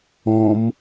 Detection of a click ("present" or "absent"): absent